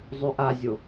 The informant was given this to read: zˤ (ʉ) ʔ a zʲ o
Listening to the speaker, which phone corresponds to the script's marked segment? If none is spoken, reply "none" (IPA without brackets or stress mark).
ʉ